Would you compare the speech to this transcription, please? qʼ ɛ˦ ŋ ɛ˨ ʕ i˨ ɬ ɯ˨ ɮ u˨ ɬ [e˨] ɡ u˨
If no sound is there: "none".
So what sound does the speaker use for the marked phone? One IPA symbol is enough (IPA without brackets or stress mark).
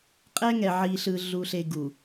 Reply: e˨